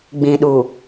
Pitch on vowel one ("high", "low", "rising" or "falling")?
low